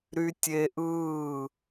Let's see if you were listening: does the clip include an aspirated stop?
no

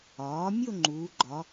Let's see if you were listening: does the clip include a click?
yes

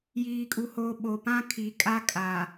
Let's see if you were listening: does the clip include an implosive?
yes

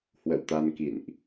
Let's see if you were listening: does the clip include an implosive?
no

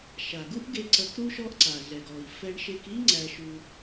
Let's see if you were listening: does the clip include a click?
yes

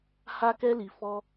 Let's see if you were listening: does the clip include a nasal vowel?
no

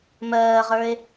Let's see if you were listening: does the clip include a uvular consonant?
yes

